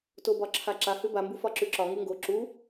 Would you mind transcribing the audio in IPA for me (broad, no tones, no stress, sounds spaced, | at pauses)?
t o b ɒ ǁʰ a ǁ a h ʉ b a m b u f ɒ ǁ ʉ ǁ ɒ ŋ u ŋ ɡ o ǁ u